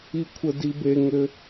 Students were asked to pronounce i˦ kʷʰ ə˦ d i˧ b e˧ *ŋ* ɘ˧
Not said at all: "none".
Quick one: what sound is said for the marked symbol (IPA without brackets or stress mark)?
ŋ